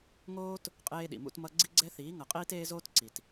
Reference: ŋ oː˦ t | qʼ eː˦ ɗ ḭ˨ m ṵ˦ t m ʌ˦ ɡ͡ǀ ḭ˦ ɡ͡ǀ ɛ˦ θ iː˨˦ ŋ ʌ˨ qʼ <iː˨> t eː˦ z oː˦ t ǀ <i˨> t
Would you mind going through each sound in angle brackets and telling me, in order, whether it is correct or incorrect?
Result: incorrect, correct

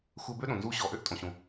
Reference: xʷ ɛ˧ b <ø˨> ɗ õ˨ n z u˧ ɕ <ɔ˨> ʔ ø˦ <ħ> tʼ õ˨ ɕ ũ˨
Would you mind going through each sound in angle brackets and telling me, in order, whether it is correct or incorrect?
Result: incorrect, correct, incorrect

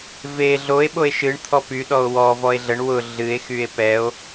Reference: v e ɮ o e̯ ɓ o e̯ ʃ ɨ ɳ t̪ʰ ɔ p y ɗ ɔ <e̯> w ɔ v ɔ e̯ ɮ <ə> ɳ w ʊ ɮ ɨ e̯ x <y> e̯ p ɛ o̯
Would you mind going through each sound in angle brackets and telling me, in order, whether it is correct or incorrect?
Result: incorrect, correct, correct

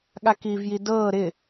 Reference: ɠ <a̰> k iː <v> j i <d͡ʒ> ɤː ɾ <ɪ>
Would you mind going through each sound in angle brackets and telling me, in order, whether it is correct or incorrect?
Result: incorrect, correct, incorrect, correct

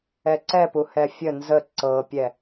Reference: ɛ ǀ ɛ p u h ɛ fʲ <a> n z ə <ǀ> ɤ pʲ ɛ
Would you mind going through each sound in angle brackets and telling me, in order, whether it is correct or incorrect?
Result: incorrect, correct

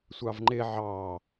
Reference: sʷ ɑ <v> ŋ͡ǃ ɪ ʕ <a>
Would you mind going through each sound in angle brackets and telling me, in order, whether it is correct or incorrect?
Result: correct, incorrect

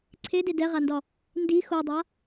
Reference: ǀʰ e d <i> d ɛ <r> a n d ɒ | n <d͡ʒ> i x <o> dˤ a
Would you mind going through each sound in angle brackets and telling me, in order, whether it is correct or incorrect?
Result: incorrect, incorrect, incorrect, correct

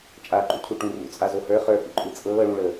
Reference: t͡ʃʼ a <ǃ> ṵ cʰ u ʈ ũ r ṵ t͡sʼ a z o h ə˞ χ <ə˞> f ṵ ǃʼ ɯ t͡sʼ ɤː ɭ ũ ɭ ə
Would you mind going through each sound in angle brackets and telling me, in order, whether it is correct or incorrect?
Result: correct, correct

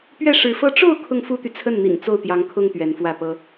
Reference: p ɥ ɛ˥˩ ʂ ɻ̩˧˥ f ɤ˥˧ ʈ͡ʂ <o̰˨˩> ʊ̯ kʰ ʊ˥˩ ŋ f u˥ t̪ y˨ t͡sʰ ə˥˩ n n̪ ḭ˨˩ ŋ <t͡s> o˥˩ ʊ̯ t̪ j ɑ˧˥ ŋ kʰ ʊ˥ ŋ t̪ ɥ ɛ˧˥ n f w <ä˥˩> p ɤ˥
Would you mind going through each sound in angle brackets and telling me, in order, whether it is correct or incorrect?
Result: incorrect, correct, correct

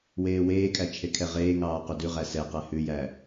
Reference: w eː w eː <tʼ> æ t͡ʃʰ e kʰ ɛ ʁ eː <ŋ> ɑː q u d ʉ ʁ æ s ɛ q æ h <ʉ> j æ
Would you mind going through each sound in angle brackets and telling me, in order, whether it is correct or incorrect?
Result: incorrect, correct, correct

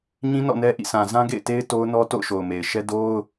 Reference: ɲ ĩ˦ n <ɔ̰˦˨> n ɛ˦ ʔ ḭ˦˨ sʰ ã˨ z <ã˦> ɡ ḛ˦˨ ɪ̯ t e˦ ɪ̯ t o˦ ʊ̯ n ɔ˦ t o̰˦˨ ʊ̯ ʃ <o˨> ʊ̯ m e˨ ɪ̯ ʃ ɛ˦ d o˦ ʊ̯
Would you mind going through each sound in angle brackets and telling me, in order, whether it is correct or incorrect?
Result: correct, correct, correct

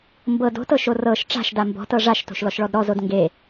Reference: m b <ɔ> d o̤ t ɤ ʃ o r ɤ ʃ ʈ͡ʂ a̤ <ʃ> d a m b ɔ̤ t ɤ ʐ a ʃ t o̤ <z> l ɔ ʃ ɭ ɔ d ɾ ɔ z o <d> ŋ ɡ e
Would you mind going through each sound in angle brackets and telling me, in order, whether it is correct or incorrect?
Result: incorrect, correct, incorrect, correct

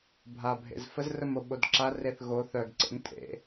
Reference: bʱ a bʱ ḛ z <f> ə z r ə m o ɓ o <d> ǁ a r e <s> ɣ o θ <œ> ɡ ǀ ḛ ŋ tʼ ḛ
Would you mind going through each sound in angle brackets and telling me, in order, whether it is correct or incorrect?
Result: correct, correct, incorrect, correct

